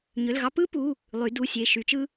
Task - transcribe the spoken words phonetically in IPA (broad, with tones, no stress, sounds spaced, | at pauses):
ɲ ø˩˧˩ l ɣ ɑ˥ p ɯ˥ p u˩˧˩ | lˠ y˩˧ d u˩˧˩ sʲ e˩˧˩ ʃ y˩˧ t͡ʃ ɯ˥